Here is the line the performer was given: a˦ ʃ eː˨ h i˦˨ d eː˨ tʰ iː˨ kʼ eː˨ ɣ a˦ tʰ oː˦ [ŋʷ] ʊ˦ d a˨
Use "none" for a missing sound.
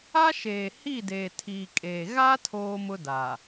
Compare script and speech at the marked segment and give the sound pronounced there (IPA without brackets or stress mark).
m